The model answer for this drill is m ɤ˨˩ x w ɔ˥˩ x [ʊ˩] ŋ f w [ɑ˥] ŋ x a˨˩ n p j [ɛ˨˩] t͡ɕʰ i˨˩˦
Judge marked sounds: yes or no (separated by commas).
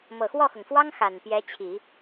yes, yes, no